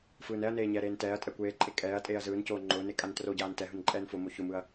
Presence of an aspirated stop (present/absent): absent